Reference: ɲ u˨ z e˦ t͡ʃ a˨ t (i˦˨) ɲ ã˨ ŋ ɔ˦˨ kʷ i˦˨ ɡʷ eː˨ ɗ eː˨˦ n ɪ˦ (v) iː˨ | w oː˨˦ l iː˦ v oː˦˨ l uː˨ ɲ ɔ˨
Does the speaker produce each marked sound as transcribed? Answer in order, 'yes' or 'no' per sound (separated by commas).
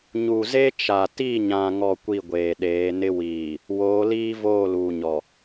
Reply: yes, no